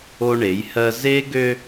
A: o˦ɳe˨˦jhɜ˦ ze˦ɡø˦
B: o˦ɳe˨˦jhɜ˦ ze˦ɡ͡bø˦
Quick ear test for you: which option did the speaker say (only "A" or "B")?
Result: A